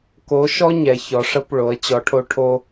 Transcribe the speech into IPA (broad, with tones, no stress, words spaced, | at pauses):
ko˧˥ ʃɔ˥ɲɛ˩˧ çɔ˩˧ʂə˧˥p ɭo˩˧ə̯t͡ɕɔ˩˧ʈʰo˧ ʈʰo˧